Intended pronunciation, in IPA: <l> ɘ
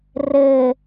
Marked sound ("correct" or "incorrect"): incorrect